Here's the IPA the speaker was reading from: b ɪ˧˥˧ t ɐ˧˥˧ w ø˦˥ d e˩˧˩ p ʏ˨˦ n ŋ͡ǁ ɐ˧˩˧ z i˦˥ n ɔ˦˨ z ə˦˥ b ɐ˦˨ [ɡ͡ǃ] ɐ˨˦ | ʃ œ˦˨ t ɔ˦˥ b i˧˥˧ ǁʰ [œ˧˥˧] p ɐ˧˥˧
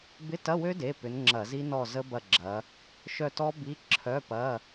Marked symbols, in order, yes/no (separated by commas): no, yes